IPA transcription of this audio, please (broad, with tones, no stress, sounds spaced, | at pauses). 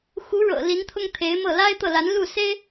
x u˧˥ ɻ ɤ̰˨˩ l i˧˥ n t̪ʰ ʊ˥ ŋ t̪ʰ e˧˥ ɪ̯ m ɤ˥˩ l a˥ ɪ̯ t̪ ɤ˥˩ l a˧˥ n l u˥˩ s e˥ ɪ̯